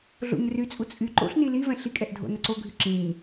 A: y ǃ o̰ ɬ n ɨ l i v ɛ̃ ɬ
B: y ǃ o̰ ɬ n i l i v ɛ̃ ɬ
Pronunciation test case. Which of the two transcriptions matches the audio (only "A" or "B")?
B